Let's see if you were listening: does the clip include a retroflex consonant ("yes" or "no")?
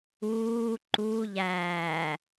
no